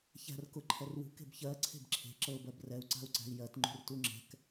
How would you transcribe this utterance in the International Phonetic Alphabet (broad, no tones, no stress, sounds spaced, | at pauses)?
ç æ̤ r k ʊ ǃʰ ɛ r w ṳ k e̤ b ç ɜ ǀʰ e̤ b ǁʰ e̤ ǁ ɤ b ɜ b r ɛ u̯ ǀ a̤ u̯ ǀ æ̤ i̯ j ɜ t ŋ͡ǃ ṳ r t u ŋ͡ǁ ɛ̤ k